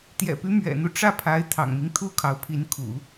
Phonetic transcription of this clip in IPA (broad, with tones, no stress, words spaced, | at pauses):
t̪jɛ̰˨˩py˧˥ mɥɛ̰˨˩n̪u˦ ʈ͡ʂä˥˩pʰa˧˥ɪ̯t̪ʰɑ̰˨˩ŋmi˦ŋ t̪ʰu˥kʰɑ˧˥ʊ̯pʰi˧˥nkʰṵ˨˩˦